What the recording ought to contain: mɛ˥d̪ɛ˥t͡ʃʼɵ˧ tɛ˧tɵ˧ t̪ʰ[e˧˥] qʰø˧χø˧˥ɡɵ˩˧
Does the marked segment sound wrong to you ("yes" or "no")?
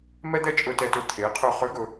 yes